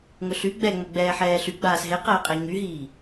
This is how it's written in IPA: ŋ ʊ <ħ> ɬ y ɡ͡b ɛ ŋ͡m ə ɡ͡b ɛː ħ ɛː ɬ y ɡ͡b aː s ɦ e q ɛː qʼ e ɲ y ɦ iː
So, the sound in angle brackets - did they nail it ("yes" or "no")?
no